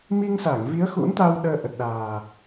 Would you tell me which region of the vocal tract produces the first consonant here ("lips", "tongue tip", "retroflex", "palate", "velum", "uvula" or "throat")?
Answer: lips